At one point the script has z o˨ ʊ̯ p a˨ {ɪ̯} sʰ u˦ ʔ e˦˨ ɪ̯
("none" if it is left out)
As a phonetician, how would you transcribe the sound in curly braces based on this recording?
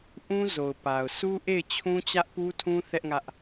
ʊ̯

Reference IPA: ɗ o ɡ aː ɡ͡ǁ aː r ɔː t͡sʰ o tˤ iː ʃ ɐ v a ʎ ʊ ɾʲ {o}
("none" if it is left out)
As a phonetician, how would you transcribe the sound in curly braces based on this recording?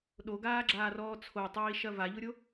o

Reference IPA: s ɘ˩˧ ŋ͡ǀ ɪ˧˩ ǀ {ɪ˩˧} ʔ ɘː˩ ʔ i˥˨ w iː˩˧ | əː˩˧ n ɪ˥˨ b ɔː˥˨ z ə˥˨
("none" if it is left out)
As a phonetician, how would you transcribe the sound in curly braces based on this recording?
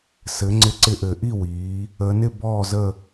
ɪ˧˩˧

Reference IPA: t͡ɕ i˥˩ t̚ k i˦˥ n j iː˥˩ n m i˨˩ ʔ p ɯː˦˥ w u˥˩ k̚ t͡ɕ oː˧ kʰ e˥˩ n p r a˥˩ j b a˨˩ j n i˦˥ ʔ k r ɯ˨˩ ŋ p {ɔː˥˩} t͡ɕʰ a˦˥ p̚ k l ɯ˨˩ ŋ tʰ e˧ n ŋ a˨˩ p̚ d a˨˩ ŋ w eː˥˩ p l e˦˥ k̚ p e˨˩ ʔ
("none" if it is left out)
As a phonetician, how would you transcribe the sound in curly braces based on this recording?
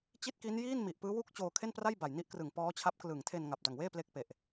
ɔː˦˥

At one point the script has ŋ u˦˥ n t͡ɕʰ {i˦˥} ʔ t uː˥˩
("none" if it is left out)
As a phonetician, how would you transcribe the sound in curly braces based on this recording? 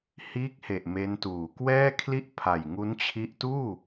i˦˥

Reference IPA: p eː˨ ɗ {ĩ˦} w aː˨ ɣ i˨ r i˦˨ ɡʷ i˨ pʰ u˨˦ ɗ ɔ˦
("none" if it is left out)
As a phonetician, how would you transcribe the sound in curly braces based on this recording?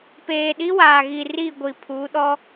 i˦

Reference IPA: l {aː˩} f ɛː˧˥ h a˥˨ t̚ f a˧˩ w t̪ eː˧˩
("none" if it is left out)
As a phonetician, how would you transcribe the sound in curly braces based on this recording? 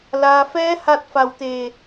aː˩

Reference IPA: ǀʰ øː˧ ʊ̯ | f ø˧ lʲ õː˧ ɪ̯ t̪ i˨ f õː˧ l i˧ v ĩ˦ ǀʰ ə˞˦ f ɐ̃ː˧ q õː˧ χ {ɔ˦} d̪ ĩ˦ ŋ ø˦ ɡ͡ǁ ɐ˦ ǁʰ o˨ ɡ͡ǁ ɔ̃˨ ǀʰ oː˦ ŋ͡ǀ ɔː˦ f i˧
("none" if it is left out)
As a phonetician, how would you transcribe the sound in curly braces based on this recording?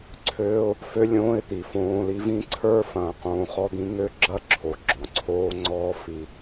ɔ˦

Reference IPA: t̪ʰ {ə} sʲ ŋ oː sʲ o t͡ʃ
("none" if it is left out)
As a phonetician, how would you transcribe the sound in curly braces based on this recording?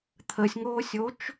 ə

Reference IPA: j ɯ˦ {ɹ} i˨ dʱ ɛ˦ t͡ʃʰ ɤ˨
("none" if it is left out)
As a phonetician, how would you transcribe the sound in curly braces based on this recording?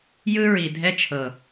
ɹ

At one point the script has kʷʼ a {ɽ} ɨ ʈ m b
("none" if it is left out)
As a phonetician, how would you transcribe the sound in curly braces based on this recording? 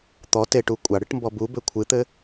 ɽ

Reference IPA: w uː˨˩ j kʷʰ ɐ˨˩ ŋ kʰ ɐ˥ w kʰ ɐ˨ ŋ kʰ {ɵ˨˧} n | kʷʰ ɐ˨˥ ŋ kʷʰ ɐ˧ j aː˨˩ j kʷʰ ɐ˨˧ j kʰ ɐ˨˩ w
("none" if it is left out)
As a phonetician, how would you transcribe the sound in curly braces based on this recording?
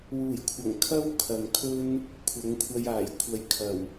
ɵ˥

